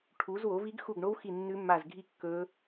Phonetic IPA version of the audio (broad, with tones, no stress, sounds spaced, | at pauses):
ʈʰ u˨˦ z w o˨˦ v i˦˥ ɡ x u˦˨ ɡ ɳ o˦˥ w x i˦˨ nː ʉ˦˥ mː a˦˨ z ɡʱ i˦˨ kː ɵ˦˥